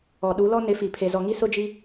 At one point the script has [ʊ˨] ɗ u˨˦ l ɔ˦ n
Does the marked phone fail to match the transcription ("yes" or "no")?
yes